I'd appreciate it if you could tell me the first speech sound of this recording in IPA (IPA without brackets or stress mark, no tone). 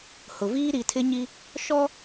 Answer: h